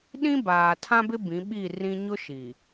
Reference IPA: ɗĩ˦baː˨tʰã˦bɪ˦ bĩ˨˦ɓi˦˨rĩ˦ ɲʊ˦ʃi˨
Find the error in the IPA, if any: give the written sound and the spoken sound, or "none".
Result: none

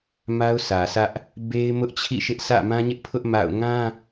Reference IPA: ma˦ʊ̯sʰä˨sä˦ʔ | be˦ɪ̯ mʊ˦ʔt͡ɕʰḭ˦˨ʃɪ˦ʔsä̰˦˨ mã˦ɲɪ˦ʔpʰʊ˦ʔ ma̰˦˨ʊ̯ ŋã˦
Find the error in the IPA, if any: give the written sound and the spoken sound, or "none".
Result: none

